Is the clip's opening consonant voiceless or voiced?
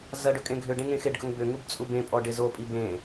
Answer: voiced